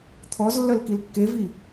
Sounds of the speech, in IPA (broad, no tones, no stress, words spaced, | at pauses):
t̪ʰɔzlːœl kilkːevi